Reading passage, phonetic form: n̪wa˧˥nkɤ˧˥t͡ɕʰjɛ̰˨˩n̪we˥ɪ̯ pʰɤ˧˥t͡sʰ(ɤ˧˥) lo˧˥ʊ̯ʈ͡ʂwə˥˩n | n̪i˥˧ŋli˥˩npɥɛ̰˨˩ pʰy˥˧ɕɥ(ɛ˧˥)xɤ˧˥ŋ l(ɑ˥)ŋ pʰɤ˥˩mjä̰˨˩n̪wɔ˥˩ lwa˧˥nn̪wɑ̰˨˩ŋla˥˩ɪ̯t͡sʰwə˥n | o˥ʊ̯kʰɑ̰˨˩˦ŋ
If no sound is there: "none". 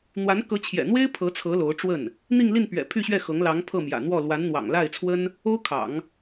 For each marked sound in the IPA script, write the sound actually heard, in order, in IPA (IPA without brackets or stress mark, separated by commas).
ɤ˧˥, ɛ˥˩, ɑ˧˥